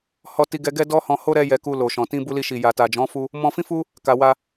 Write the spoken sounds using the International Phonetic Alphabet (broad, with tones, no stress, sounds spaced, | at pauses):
h ɔ˦ t i˦ ɡ ɛ˦ ɡ ɛ˦ d ɔ˦ h ɔ̃˧ h o˦ ɾ ɛ˦ j ɛ˧ k u˧ l o˨ ʃ ɔ̃˨ t ĩ˧ b u˧ l i˧ ʃ i˨ j a˨ t a˨ d͡ʒ ɔ̃˨˦ f u˦ | m ɔ̃˧ f ĩ˦ f u˦ | k a˧ w a˦